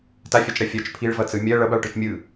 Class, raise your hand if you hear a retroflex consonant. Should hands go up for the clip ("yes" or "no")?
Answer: yes